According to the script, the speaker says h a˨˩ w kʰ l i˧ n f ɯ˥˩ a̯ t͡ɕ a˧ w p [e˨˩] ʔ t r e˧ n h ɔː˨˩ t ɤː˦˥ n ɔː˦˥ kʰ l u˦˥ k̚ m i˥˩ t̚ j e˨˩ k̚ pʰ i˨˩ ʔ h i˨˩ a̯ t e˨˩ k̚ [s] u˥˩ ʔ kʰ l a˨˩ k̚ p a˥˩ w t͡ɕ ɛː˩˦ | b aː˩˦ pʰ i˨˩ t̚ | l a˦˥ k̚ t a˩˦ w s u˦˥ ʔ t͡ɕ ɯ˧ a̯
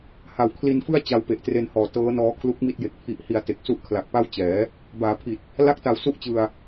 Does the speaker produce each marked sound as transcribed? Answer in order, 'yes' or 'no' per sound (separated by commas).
yes, yes